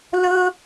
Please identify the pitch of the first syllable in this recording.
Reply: high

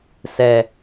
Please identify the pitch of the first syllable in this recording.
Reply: low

